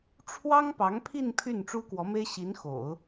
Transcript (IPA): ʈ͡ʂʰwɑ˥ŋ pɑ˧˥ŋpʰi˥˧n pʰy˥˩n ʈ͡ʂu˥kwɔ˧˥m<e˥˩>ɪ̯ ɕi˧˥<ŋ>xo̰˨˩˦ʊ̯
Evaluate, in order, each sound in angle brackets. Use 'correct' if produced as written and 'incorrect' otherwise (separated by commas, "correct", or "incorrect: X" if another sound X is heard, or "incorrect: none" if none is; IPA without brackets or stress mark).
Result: incorrect: e˥, incorrect: n